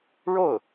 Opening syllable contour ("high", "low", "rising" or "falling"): falling